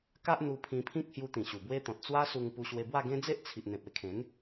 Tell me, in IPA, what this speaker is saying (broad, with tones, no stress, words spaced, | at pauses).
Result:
ka˦ʔn̪u˧ pʰĩ˧pʰĩ˦k̚ hju˧t̪ĩ˨˩ɕu˨˩ bwe˦t̪ɔ̃˨t̚ t͡swa˦su˧ŋpu˧ɕwe˧ bwa˥˧ɡẽ˦ d͡ze˦ʔt͡sʰi˨ʔ n̪ẽ˨p̚e˧ kʰẽ˨˦n